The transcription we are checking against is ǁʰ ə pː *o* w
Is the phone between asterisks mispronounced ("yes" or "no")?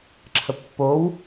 no